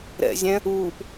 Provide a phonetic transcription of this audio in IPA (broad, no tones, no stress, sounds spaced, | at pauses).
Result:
ɾ ɛ̰ zʲ ɛ̃ | uː p